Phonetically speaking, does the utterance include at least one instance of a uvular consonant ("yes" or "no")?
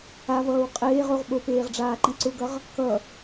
yes